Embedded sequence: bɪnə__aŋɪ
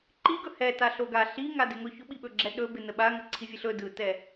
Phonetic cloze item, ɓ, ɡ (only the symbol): ɓ